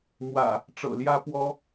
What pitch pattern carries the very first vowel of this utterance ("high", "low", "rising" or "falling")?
low